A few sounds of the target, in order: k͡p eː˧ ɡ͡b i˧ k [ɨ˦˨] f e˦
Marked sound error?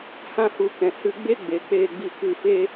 no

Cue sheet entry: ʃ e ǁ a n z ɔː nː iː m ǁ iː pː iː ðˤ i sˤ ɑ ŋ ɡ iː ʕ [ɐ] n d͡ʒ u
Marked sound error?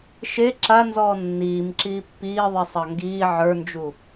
yes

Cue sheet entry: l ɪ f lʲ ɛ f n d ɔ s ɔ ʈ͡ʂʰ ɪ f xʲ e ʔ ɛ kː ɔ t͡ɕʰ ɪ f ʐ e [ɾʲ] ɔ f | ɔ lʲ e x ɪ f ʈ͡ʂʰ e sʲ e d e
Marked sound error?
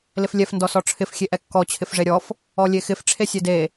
no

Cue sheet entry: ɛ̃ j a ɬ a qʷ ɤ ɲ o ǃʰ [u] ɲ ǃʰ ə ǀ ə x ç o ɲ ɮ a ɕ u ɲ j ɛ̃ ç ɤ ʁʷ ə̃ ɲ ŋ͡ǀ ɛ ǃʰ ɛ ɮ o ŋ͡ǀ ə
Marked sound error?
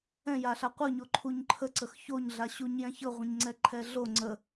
no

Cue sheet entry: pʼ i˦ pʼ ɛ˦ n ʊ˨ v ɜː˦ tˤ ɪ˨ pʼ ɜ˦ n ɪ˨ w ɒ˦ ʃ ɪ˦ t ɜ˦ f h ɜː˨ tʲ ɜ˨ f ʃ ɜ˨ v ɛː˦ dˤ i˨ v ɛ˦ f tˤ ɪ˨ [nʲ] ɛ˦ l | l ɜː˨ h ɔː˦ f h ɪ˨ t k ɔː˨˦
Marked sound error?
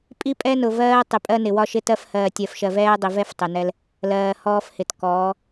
yes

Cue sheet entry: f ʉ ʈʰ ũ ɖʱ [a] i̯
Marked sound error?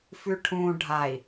no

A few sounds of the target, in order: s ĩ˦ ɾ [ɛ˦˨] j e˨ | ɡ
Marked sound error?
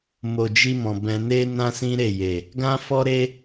yes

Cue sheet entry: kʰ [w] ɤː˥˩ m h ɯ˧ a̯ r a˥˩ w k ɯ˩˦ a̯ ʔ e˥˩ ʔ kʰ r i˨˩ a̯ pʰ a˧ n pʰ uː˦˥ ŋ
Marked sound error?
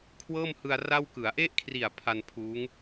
no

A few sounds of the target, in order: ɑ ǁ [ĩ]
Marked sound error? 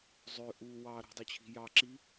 yes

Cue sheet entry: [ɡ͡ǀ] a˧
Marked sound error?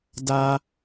yes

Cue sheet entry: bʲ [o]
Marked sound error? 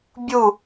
yes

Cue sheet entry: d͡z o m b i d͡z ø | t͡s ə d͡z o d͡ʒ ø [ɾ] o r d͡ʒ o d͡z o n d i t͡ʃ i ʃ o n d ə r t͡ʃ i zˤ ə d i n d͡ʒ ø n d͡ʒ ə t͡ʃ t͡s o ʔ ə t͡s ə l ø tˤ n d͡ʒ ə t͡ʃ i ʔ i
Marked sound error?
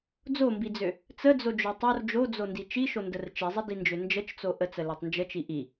yes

